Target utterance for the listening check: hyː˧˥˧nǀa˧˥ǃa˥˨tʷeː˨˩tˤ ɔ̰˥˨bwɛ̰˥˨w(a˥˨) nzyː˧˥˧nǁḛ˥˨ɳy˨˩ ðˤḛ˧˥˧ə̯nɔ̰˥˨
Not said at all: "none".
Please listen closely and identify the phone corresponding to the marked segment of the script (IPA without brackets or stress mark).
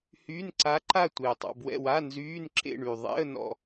a˧˥˧